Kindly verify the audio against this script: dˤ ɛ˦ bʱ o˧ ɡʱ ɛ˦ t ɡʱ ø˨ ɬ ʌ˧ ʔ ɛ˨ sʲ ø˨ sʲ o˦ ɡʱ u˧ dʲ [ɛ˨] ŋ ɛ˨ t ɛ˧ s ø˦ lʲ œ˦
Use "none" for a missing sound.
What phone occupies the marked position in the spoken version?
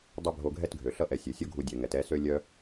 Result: ɛ˨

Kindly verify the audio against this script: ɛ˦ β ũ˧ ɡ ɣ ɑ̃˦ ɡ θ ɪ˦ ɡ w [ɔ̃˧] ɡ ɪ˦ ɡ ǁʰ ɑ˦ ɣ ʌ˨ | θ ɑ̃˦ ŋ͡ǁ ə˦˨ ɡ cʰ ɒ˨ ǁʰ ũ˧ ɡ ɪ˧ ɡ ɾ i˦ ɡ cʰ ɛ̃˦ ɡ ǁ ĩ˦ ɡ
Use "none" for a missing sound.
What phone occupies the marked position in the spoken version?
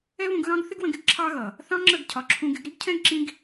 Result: ə̃˧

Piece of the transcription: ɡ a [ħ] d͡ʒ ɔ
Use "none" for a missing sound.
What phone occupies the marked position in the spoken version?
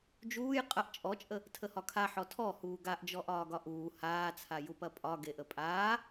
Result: ʔ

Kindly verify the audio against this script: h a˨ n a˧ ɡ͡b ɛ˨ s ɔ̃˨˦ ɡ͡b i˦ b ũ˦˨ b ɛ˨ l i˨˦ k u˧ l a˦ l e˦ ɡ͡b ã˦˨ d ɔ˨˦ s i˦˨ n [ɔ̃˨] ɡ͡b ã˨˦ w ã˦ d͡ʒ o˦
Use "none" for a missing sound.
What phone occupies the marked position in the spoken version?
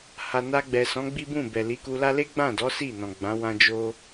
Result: ɔ̃˨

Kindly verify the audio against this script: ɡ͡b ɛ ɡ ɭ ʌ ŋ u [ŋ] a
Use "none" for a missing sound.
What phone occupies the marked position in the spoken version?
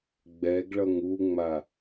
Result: ŋ͡m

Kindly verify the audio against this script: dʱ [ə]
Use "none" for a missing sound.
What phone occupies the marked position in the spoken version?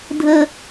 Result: ə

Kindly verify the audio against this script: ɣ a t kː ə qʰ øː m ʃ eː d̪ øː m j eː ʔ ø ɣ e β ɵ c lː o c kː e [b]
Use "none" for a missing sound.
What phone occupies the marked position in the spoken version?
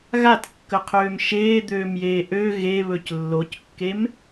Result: m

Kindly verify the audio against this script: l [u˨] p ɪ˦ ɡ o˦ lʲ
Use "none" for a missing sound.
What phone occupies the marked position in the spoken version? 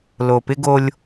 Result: o˨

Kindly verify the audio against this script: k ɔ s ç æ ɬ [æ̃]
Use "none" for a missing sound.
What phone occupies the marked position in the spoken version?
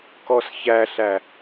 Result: æ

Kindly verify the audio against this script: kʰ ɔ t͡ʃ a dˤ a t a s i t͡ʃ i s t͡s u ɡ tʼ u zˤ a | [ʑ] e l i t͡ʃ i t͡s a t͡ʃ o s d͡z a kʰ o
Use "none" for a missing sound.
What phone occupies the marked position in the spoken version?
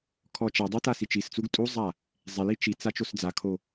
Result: zˤ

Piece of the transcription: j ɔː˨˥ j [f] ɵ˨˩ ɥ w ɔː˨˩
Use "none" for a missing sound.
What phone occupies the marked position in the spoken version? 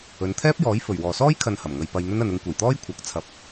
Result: f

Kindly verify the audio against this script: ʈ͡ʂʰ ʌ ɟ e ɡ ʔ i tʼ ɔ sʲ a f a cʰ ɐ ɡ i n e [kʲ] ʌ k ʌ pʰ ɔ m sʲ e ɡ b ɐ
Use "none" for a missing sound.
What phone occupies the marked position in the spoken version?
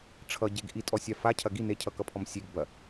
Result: cʰ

